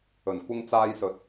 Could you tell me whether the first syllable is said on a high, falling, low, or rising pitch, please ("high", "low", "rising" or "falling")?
low